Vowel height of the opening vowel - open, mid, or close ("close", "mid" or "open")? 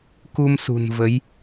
close